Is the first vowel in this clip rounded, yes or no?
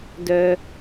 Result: yes